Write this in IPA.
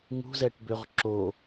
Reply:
ŋṳzɛʈbøʁ ǁo

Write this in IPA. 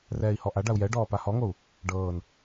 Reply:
rɛːi̯hɔʔa ɖau̯jɛ ɖɔːpahɔŋou̯ | ɖɤːn

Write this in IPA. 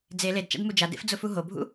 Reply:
d͡ze ledt͡ʃa̰d mud͡ʒadḛf d͡zʊfuɦobʱṵ

